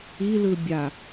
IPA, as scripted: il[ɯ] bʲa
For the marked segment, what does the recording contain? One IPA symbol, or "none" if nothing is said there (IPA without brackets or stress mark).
ɯ